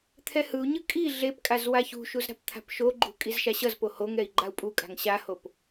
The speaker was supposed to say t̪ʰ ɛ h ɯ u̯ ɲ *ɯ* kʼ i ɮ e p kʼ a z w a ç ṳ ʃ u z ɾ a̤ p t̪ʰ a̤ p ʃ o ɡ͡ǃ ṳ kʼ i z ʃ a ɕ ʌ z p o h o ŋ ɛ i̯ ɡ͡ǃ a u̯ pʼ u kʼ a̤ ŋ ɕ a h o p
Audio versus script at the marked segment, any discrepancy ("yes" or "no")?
no